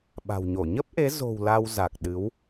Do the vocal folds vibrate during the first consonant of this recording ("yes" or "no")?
yes